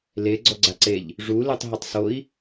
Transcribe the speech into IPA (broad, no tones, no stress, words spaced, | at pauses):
le ɡ͡ǀɔɡ͡ǀaǀeʎ | ʐulɨtˤ ɦɘtˤsoi̯